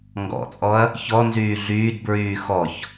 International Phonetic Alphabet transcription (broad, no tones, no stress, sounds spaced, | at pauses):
ŋ ɡ ɔ̰ t͡sʼ ɔ ɐ̯ | ç ɔ n z yː ɮ yː d b ɹ yː x ɔ ç